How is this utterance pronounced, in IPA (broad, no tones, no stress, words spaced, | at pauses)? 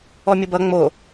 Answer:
ɔmʲʊbʌ ŋ͡mo